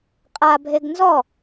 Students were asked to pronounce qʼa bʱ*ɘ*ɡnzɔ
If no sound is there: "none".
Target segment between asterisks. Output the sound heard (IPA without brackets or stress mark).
e